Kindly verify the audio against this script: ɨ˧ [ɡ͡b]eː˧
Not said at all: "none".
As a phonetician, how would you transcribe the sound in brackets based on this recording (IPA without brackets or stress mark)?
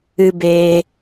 b